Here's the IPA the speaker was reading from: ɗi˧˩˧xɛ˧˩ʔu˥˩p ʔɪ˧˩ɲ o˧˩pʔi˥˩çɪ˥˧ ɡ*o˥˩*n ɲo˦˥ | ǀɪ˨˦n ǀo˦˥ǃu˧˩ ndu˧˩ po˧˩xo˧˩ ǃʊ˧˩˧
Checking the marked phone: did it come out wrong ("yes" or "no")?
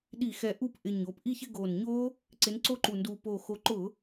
yes